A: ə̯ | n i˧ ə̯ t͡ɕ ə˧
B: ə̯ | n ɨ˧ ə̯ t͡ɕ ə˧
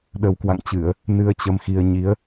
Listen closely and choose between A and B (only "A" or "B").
B